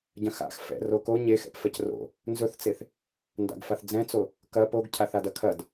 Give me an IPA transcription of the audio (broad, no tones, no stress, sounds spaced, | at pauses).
ɟ ɐ̃ x a̰ x f ɛ̰ r o k o ɲ e x ɛ̰ p f ɛ c r o̰ | n z ɵ θ t͡s e θ | n d a̰ ɡ f a θ d͡z ɛ̃ t͡s o | k ɐ p o ɡ cʰ a θ a d ɐ kʰ ɐ d